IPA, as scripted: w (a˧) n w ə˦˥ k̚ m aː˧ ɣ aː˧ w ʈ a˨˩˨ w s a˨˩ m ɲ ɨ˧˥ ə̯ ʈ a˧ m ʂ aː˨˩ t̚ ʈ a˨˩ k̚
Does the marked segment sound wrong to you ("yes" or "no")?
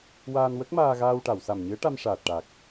yes